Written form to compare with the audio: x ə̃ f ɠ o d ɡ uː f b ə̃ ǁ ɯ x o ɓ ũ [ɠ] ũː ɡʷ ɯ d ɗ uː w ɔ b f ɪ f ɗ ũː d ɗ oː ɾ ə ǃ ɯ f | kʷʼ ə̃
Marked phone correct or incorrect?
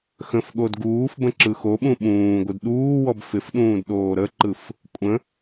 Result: incorrect